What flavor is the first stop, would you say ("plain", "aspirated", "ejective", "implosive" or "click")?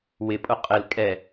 ejective